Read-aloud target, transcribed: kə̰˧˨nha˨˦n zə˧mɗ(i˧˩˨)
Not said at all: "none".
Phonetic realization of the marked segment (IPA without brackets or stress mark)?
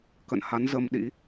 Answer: ḭ˧˥